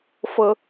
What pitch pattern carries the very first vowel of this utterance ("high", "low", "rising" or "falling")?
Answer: high